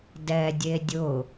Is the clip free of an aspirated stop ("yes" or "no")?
yes